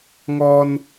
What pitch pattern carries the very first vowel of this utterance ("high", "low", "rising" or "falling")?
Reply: high